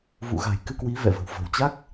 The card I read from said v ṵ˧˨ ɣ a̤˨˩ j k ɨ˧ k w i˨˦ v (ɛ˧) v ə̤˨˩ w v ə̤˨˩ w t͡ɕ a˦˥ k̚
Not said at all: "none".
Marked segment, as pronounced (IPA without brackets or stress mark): ɛ̰˧˨